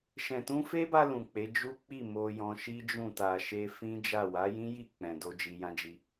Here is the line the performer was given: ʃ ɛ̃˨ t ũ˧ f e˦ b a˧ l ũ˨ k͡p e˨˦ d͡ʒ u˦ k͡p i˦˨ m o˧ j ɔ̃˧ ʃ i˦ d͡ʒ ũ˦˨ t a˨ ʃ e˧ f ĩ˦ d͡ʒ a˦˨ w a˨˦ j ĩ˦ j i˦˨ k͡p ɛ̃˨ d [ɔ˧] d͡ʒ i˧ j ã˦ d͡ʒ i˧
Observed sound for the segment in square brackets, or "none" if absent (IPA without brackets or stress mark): o˧